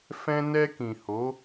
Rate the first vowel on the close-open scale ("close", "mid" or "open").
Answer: mid